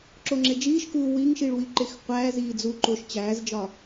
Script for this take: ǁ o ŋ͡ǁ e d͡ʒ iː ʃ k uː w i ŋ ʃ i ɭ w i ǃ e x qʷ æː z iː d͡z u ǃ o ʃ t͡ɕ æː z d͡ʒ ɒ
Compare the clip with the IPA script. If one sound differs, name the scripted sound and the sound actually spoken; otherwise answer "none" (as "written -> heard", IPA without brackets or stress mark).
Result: none